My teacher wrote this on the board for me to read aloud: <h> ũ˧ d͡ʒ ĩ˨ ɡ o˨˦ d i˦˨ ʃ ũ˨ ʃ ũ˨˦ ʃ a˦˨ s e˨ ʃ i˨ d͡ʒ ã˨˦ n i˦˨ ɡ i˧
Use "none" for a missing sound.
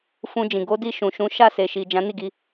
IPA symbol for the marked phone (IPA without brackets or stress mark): f